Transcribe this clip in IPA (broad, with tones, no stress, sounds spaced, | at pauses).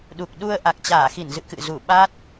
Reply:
ɗ u˨˩ k̚ ɗ u˧ ə̯ ʔ a˨˩ k̚ t͡ɕ aː˧˩ x i˧˩ n z ɨ̰˧˨ k ɨ̰˧˨ z u˧˩ ɓ a˦˥ t̚